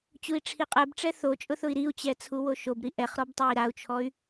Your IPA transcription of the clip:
t͡ɕui̯ʈ͡ʂʰiqʼɛbʈ͡ʂɛ θot͡ʃʼʊ θʊi̯ɾiu̯t͡ɕɛ t͡sʰuwoʃobɾi ʔɛχɾɔb tˤai̯ɾau̯t͡ʃʰɔy̯

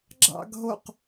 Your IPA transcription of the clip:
ɡ͡ǁɑ̰ɡɦoq

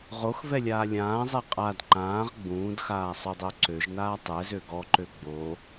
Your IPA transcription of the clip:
ʁoxvɛlʲaː lʲãːzˤɛ qʼad ǃãːʁ ɡ͡bũːdxaːsˤødˤo ǀøʒnaː tˤɛzø ɡɔǃø ɡ͡bo

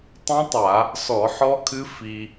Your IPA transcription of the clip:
tˤũ˦˥tˤa˧˩˧ | sɔ˧˩˧ħɔ˦˥kʰɨ˦˥ fi˧

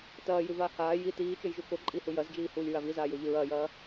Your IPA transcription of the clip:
tɐːjʉvaː haː ji tiːt͡ʃɵjʒu koǃʼihu jɐzd͡ʒiːhuːlʲɹa vizaːjoʎʉ ɹɐːjɐː

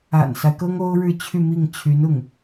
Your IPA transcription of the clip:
a̰˨˩nsa˦ɪ̯ kɤ˥ŋo˥ʊ̯ɻɻ̩˥˧ t͡ɕʰy˥˧mi˥˩ŋ t͡ɕʰy˧˥nʊ˥˩ŋ

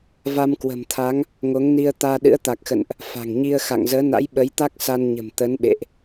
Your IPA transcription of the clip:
va˧mkwə̤˨˩mt̪ʰa˨˦ŋ | ŋo˨˦ŋni˧ə̯ t̪aː˧ ɗɨ̰˧˥ə̯t̪a˨˩k̚xə̰˧˨nʔ | fa̤˨˩ŋɲi˧ə̯ xa̰˧˨ŋzəː˨˦na̰˧˥j ɓə˨˦jt̪a˦˥k̚ sa˧nɲə̤˨˩m t̪ə˨˦nɓḛ˧˨ʔ

